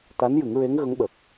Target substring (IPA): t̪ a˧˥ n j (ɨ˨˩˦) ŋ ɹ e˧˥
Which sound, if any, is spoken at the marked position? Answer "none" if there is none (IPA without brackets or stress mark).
ɨ˨˩˦